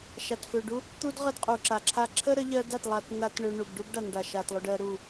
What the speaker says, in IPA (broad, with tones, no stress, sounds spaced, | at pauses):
ʃ a˨ t f ø˨ ɖ u˦ | t̪ u˦ d ʁ ɜ˦ d qʼ u˨ ǁ a˨ ǁʰ a˦ ǁʰ ə˦ ɾ ə˨˦ ʎ ɜ˧ d a˦˨ t lˠ a˧ t n̪ a˦ t ɳ ø˧ ɳ u˨ b ɖ u˦ b ɖ a˨ n ɖ a˨ ʃ a˧ t lˠ ø˦ ɖ ɜ˦ ɾ u˦˨